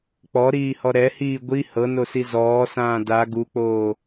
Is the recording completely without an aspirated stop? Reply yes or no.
yes